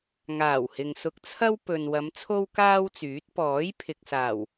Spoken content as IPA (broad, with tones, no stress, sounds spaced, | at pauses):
ŋ aː˨˩ w h ɪ˨ ŋ s ʊ˧ k̚ t͡sʰ ɐ˥ w p ɵ˨ n w ɐ˨˧ m t͡sʰ o˥ w k aː˥ w t͡s yː˨˥ t̚ p ɔː˨˥ j pʰ ɪ˨ k̚ s aː˨˩ w